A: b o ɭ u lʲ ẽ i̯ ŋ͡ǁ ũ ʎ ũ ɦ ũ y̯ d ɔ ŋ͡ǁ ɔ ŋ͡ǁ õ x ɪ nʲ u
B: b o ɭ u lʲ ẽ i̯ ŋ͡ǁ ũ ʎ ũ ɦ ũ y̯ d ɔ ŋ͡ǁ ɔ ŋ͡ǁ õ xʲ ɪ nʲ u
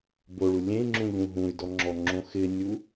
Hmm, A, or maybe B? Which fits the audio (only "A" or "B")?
A